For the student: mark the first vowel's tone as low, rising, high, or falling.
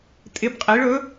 rising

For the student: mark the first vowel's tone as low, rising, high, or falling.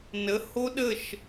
rising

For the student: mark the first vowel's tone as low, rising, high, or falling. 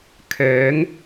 rising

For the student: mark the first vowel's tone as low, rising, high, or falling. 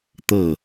falling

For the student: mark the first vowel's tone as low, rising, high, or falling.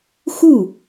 falling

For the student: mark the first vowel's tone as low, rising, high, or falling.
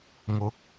rising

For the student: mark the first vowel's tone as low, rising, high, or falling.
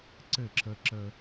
falling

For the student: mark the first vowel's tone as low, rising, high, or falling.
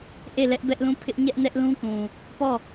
falling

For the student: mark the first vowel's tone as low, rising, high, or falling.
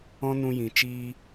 high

